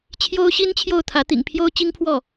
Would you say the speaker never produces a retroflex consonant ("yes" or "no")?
yes